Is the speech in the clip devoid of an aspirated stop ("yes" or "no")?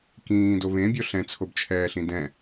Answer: no